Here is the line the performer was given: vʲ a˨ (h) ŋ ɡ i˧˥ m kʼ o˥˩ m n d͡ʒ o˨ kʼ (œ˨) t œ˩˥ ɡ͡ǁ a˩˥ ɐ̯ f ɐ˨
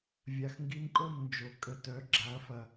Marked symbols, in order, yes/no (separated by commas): no, no